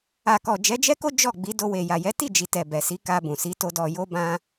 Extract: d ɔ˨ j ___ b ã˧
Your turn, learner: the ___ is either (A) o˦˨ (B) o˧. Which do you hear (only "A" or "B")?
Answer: B